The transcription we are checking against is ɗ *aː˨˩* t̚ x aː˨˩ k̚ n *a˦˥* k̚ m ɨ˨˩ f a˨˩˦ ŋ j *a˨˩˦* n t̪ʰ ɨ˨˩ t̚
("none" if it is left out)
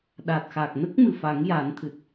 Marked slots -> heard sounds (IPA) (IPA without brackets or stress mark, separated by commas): aː˨˩, ə˦˥, a˨˩˦